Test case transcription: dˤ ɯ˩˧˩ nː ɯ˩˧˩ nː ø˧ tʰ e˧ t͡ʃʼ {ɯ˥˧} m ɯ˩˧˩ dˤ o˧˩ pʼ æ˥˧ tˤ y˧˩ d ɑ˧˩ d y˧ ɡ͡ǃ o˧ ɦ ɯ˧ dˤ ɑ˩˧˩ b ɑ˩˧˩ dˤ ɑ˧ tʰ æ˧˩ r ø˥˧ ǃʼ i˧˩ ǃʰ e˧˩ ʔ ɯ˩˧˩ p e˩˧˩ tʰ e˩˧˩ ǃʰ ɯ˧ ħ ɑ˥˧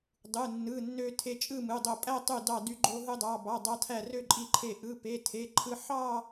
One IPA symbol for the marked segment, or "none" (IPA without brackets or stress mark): ɯ˥˧